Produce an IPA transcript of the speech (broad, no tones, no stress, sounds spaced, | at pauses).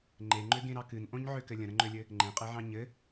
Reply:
ŋ͡ǃ e ŋ͡ǃ ø ɡ ẽ ɾ ɑ k ɨ n ʔ õ ɲ ʕ ø k ɘ lʲ ə̃ ɾ ə̃ ŋ͡ǃ ø lʲ ɘ | ŋ͡ǃ ẽ qʼ e ʕ ɑ̃ ɲ ɘ